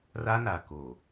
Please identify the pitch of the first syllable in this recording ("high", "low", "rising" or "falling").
high